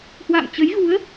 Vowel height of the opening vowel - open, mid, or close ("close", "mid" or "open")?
open